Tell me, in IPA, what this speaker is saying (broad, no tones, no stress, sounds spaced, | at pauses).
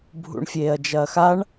bʱ ṵ ɳ fʲ eː ɐ̯ d͡ʒ ɐː x a ɳ